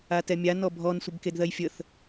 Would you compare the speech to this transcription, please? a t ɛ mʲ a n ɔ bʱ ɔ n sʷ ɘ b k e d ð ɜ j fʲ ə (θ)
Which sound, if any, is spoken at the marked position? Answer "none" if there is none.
θ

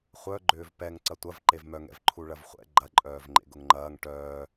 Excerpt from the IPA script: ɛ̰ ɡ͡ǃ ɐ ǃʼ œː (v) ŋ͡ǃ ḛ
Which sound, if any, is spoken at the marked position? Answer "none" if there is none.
v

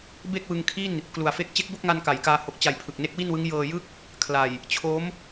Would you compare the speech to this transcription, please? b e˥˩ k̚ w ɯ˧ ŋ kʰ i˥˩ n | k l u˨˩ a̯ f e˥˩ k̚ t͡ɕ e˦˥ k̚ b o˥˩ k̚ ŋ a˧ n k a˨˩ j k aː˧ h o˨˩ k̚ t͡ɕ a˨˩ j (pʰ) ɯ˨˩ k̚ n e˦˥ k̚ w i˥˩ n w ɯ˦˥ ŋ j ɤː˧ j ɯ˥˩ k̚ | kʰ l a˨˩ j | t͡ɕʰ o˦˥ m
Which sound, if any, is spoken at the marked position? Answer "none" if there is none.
pʰ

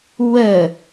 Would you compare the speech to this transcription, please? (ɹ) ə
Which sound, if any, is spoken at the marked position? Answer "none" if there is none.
w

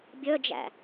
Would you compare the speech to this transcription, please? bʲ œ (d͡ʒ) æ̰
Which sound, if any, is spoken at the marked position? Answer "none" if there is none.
d͡ʒ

